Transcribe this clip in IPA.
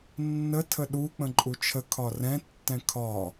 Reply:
nːə tʰəɗu k͡pə̃ǃʼut͡ʃʰə kʰɒrɛ̃ tːɛ̃kʰɒ

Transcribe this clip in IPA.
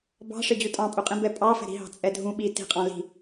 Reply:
bɑ̤ʂɪd͡ʑu tʼɑ̃pʼuqʼĩ bɛpʼɑ fɛ̤ɾi̤ɦɑ̤ t͡sʼɛdʱũ ɓi ti̤qʼɑ̃ li̤

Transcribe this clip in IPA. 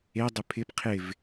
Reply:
edˤɪ pʰɪp qʰɪv

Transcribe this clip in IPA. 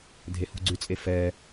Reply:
dʱehṳɡ͡ǀʉt͡sʼe fɛ

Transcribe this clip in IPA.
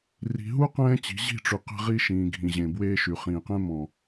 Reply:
ri̤˨ɦu˦ qɛ̃ː˦t͡ɕi̤˨˦ ʑi̤˦˨ʈ͡ʂy˨ qe̤˦ʁi˦ ʃĩː˨ɡʱĩ˨ʑẽ˨ bweː˦ʃy˨ χĩː˨qẽ˦ mɔ̃˨

